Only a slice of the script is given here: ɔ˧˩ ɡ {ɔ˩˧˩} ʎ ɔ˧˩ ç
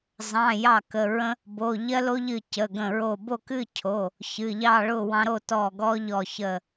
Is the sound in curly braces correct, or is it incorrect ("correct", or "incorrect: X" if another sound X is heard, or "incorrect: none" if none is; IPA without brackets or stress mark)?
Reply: incorrect: ɔ˦